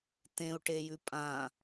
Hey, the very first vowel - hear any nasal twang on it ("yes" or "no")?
yes